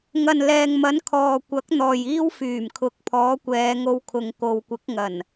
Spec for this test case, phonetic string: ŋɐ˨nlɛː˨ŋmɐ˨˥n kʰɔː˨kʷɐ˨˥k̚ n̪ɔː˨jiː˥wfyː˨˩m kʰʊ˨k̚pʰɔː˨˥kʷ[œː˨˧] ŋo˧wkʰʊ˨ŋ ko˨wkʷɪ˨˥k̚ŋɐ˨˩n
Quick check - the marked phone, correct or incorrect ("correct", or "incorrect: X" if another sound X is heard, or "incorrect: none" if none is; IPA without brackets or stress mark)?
incorrect: ɛː˨˧